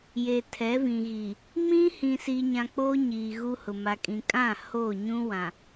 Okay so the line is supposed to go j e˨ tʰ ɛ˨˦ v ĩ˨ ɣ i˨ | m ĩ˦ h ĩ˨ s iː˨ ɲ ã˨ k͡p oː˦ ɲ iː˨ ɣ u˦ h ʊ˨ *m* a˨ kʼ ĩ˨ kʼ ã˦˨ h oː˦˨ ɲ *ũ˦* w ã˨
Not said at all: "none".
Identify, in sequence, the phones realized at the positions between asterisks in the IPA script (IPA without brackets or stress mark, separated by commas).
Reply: m, ũ˦